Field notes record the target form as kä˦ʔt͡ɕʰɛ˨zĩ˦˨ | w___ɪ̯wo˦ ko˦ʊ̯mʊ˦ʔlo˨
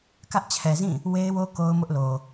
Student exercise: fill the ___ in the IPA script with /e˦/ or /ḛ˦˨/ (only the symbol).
e˦